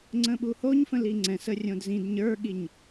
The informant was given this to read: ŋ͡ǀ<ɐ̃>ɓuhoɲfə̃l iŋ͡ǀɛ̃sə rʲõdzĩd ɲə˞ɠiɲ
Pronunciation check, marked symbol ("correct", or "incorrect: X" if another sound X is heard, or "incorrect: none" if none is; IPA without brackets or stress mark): incorrect: ə̃